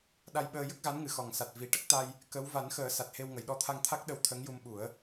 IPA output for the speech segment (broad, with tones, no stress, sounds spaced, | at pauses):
ɗ a˧ j ɓ əː˧ j ə˦˥ k̚ ɣ a˧˥ n ŋ ɨ˨˩˨ x ɔ˨˩ ŋ s a˨˩ t̚ v i˨˩ ʈ ə˦˥ k̚ t̪ a˧ j | k ə˧˥ w v a˨˩˦ n x əː˨˩˦ s a˨˩ t̚ h e˧ w ŋ ə˨˩˨ j ɗ ɔ˧ t̪ʰ a˧ ŋ t̪ʰ a˦˥ k̚ ɗ ə˧˥ w t̪ʰ ə˧˥ ŋ j u˧ m ɓ u˨˩˦ ə̯